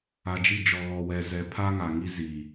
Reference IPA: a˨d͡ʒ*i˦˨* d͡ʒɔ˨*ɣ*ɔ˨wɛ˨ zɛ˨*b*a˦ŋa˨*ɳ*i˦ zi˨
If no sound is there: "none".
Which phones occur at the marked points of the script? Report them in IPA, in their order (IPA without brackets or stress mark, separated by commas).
i˦˨, ɣ, pʰ, ŋ